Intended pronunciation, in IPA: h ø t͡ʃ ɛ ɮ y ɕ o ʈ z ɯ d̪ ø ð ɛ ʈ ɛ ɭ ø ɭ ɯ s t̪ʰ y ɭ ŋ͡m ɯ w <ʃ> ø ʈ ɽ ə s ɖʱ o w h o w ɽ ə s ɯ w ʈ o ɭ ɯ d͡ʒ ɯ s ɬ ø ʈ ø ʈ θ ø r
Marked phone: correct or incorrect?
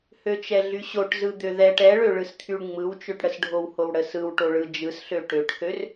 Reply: incorrect